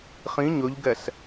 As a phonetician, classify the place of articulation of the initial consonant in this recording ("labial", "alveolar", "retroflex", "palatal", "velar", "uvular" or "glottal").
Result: uvular